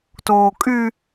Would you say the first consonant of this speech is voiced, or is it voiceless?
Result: voiceless